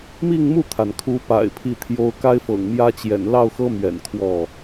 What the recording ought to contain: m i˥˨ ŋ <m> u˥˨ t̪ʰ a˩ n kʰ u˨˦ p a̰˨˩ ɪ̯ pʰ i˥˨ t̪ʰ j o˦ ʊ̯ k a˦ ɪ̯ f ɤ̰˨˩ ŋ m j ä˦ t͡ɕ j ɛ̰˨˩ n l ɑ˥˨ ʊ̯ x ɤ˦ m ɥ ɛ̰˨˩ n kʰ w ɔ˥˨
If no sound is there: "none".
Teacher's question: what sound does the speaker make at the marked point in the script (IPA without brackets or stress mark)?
m